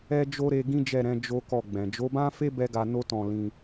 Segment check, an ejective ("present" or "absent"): absent